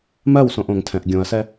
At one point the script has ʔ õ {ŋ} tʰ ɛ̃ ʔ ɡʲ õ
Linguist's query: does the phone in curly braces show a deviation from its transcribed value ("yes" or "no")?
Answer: no